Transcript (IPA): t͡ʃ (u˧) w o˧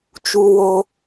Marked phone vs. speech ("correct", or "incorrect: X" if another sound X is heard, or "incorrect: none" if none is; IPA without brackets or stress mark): correct